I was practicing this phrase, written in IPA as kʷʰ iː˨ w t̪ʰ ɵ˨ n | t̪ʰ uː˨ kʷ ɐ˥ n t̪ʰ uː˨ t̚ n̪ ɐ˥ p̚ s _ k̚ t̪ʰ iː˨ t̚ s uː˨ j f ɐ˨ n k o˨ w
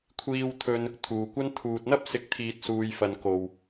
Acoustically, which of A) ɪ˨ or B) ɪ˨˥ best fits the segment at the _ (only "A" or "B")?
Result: B